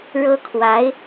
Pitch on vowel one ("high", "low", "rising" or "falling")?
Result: high